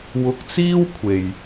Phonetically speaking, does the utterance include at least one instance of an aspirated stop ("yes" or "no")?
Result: yes